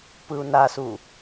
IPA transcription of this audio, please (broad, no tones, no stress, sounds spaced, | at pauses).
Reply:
p ɯ u̯ n a s u